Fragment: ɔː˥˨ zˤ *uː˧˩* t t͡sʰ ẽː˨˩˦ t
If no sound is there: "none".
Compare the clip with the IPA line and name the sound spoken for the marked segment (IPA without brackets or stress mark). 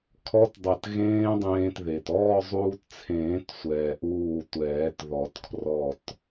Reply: uː˧